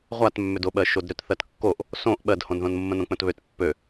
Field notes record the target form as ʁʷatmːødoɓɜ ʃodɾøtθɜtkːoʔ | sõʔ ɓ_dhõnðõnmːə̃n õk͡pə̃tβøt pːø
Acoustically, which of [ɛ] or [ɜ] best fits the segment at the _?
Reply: ɜ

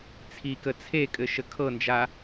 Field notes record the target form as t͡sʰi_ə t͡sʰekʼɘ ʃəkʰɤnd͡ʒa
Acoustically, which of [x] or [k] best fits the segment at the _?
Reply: k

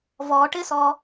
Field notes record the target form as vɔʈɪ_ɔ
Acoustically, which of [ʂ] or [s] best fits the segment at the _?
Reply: s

